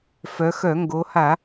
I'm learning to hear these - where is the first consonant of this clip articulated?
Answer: lips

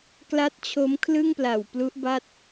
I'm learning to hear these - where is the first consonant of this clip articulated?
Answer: velum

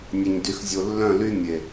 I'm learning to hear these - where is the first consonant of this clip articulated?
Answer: tongue tip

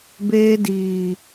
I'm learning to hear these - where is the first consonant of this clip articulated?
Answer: lips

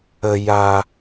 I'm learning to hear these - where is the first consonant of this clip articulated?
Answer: palate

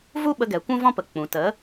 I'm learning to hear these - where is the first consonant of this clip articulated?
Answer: lips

